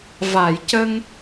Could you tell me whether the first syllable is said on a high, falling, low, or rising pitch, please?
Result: low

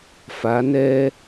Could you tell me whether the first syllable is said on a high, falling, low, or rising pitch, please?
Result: rising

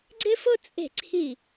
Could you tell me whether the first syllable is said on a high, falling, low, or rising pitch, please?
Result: high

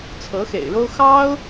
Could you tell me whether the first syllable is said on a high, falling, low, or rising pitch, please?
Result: rising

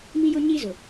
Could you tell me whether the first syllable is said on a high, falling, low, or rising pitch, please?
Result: high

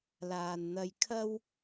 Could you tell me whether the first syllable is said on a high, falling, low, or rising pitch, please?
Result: low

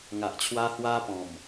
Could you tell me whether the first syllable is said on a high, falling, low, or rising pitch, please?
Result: low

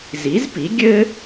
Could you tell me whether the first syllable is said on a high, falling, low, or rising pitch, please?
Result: rising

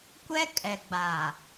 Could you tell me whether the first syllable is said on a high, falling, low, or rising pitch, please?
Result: high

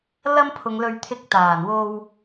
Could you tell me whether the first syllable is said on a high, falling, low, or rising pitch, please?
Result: high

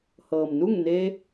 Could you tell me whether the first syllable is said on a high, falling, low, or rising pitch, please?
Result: low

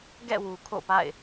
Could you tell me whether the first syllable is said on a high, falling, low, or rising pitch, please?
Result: falling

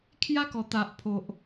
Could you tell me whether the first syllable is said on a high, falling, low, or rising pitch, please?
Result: high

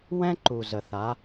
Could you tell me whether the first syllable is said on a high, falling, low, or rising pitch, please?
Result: high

